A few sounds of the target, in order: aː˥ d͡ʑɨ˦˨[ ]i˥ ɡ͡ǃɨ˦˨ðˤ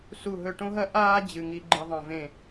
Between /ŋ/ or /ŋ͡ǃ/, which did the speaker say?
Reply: ŋ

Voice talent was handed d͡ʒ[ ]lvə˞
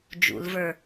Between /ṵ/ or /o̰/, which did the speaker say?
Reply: ṵ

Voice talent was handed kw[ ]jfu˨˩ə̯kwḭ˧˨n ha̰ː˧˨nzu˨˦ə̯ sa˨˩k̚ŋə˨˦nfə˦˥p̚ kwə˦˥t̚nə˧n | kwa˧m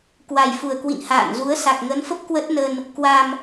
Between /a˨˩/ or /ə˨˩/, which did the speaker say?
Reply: a˨˩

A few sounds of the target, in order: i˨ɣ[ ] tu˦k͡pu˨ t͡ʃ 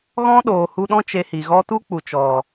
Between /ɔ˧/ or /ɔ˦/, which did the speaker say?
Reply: ɔ˦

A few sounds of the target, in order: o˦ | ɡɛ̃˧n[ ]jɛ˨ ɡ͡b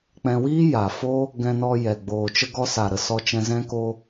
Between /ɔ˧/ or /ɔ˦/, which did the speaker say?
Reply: ɔ˧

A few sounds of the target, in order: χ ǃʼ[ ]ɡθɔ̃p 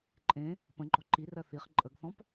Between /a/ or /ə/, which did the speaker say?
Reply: ə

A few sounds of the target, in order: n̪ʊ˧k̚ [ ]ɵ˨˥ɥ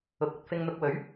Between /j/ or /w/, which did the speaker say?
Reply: w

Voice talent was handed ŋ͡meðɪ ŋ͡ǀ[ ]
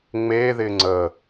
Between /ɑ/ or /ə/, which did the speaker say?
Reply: ə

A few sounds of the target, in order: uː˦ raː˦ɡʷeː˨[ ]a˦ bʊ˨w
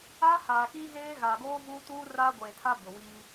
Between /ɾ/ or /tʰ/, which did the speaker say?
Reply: tʰ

